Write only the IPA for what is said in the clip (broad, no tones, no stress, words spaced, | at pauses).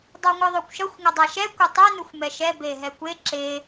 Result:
dˤoŋʷɯðˤokʷʃʌxʷ ŋʌdˤaʃɛ kʷʌtˤɛ nuxʷmɛʃɛ beɦɛkʷe ǁe